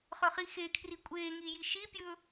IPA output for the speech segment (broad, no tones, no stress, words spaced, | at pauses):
χɵχixekʰri kʷʼeːŋi jiʃipʲɵː